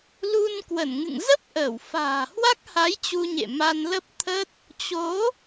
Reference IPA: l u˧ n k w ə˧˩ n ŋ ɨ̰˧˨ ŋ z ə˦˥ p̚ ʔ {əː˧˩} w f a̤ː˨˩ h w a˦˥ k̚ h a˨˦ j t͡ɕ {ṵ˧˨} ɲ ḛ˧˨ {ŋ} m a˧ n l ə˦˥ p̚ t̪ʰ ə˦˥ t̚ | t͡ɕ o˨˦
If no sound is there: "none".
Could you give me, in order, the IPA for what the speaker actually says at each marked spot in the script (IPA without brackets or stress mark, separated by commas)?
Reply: əː˧˩, u˧, none